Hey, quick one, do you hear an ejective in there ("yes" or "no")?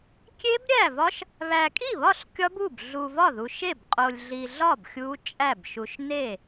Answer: yes